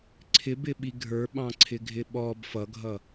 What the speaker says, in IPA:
ǀʰɪbɪ ɓiɡʱə˞ ɓɑ̃ǀʰɪɡʱɪɓɔb fʌɡʱʌ

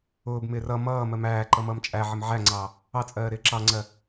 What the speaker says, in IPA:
ʊːbmɪːr ʌ mʌː mɜmæːǃʌ mʌːmt͡ʃʼæʕɪm ʕæŋ͡ǀɑ | ɑt͡sʼɜː ɾɪːǁɑŋ͡ǀɜ

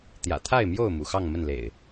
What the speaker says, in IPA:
t̪jä̰˨˩t̪ʰa˥˨ɪ̯mjo˥˨ʊ̯ mṵ˨˩xɑ˥˨ŋmə˥˨nlḛ˨˩ɪ̯

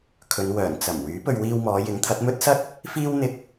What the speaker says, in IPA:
kʰɵ˨˧n wœː˨˩nt͡sɐ˨˩m wyː˨˥pɵ˧ɥ wiː˧wmɔː˨˧ jɪ˨˥ŋt̪ʰɐ˨˥t̚ mɵ˥t̚sɐ˥t̚ | fiː˥w n̪ɪ˧k̚

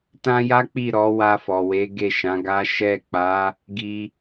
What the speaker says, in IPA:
tã˦ja˦k͡pi˦˨ ɾɔ˨˦wa˧fɔ˨we˨˦ ɡe˦˨ʃã˨˦ɡa˦ ʃɛ˦˨k͡pa˨˦ | ɡi˦

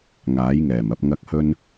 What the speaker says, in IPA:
ŋaː˨˥jŋɛː˨˩mɐ˧p̚ ŋɐ˨˥k̚hɵ˧n

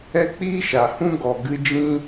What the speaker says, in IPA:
ɛ˦k͡piː˦ʃa˨hũ˦ ɡɔ˨ɡɨ˧d͡ʒĩ˦

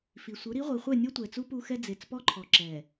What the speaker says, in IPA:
fi˨sʷɯ˨˦ ɾi˨˦ʁʷi˨ χʷɛ˦˨nʲo˦tʷɛ˨t͡su˦ pu˦xɛ˦ d͡ze˨t͡spɔ˦ǃʰɔ˨ǁɛ˨

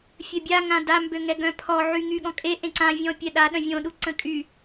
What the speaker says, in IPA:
fʲəbʲa ŋãda mbøŋɛɡœ̃pʰɔ ʕyŋyɠɔ̃kʼe ʔẽǀã vʲɔ̃pʲɛɗa ɗœ̃vʲõ ɗuǀə̃kʼy

